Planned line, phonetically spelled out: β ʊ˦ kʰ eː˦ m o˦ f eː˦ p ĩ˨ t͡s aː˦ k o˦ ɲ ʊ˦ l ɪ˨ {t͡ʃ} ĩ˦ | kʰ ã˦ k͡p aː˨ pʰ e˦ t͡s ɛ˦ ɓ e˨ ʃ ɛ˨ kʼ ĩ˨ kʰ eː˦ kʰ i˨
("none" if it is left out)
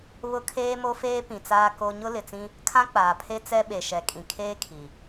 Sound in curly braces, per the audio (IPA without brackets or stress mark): t͡s